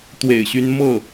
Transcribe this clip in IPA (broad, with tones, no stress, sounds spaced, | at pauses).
t̪ w ḛ˨˩ ɪ̯ ɕ y˧˥ n m ɤ˥˩